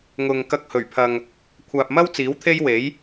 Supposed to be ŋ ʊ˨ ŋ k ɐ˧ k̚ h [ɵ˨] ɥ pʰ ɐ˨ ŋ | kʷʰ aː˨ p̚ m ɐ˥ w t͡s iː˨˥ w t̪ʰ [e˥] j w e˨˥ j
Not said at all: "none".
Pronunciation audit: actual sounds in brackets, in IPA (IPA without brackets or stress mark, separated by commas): ɵ˨˩, e˥